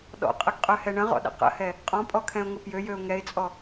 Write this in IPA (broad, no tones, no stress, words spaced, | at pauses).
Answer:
ɗɔ̰qʼəɡqʼøhɛ ɳə̃ʁɔ̰ɗə̰ qə̰hɛ | qʼɔ̃pʼɔkʰɛ̃ʊ̯ŋə pjøjøʊ̯ ŋɛɪ̯t͡sʼɔ